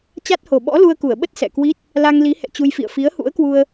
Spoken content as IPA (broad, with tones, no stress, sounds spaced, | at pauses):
t͡ɕ a˦˥ t̚ h o˨˩ ɓ ɔ̰˧˥ l u˧ ə̯ k u˧˩ ə̯ ɓ ə˦˥ t̚ s ɛ̰˧˨ k w i˦˥ t̚ | l a˧ ŋ l i˨˦ h ɛ̰˧˨ t͡ɕ u˧ j f ḭ˧˨ ə̯ f i˨˦ ə̯ h ṵ˧˥ ə̯ k w u˧ ə̯